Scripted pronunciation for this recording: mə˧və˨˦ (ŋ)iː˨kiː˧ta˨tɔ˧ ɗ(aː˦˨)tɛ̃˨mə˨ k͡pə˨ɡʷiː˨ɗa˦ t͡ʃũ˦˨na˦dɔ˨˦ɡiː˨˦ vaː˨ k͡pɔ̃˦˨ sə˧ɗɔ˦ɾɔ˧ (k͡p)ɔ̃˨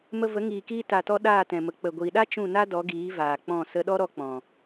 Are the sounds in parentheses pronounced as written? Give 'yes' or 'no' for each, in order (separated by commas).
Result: yes, yes, yes